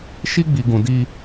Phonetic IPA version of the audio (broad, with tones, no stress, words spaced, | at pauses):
ʃi˦ɡ͡bi˨ ɡũ˨di˦